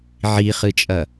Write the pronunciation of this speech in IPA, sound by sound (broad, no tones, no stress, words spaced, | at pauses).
ʕiχɨt͡ʃʼɐ